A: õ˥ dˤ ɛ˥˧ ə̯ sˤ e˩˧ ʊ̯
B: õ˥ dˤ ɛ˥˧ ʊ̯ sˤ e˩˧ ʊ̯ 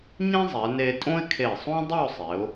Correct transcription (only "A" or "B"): B